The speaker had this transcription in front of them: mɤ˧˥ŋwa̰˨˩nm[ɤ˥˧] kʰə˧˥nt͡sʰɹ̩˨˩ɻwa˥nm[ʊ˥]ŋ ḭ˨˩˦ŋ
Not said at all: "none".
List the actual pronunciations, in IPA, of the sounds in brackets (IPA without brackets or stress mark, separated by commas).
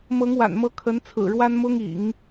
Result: ɤ˧˥, ʊ˥